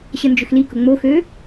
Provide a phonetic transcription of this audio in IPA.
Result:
ɕ ə n d͡ʒ ʏ x l i k ʊ ŋ͡m o x øː

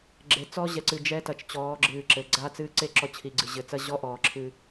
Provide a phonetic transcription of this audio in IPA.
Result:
ɡ͡ǁ e˨ t͡s ɔː˦ ʑ ɛ˨ ǀ ɨ˨ d͡ʒ ɛː˦ t ɐ˨ t͡ʃ t͡ɕ ɔː˨˦ ɡ͡ǁ ɨː˨ ǁ ɘ˨ ɡ͡ǀ a˦˨ t͡s ɨː˦ ǀ e˦ ǁ ɔ˦ t͡ɕʰ i˨ ɡ͡ǀ ɨ˨ ʑ ɘ˨ t͡s ɐ˦ ʑ ɔ˦ ʔ ɔː˨ ǁʰ ɨ˦

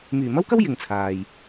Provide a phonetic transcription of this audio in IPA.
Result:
m yː˨˩ m ɐ˥ w k ɐ˥ w j ɪ˨ ŋ t͡sʰ aː˨ j

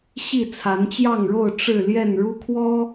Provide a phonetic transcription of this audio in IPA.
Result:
ɕ i˥˨ t͡sʰ a˨˦ n t͡ɕ j ɑ˥˨ ŋ ɻ o˥˨ ʊ̯ ʈ͡ʂ ɻ̩˥˨ l j ɛ˥˨ n ɻ u˦ kʰ w ɔ˦

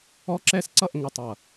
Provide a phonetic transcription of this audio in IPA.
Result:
ɔ˦ ǁ ɛ˦ s ǀ ʌ˦˨ ʔ ŋ ɵ˨ tˤ ʌ˨

